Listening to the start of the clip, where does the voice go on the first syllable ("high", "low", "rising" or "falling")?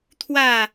falling